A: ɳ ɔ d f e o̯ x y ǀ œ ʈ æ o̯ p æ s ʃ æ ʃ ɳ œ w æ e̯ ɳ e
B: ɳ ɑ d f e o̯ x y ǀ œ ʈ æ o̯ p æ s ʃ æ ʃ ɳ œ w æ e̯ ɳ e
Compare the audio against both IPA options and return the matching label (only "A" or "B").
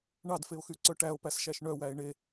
B